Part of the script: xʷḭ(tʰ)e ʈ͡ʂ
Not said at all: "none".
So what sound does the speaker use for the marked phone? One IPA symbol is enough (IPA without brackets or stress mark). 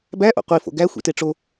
t